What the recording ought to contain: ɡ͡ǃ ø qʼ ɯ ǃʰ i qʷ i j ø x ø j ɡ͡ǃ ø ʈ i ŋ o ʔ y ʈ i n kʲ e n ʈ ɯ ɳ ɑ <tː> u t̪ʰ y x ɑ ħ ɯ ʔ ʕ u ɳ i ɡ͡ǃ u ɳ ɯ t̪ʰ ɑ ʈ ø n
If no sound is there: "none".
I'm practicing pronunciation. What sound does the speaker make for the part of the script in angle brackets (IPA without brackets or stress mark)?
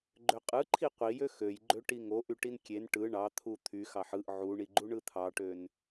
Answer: t̪ʰ